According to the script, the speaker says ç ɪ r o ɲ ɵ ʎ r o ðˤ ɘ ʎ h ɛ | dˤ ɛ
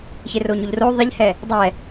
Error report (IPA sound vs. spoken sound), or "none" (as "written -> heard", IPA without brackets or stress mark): ɵ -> o